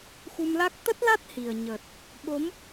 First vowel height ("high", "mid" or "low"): high